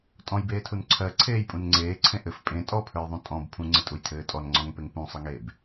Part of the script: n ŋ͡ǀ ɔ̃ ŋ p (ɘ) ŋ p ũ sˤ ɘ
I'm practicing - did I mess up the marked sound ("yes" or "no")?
yes